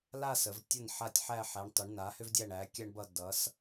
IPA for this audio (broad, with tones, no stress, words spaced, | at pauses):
la˥˧sə˩˧v tʲʌ˧˩n ħa˧˩tʲħæ˧˩ħæ˩˧ɳ tˤʏ˩˧ɳna˩˧hʏ˧vdʲæ˧˩ɳ æ˩˧kʲæ˧ɳbʌ˧˩ dʌ˩˧s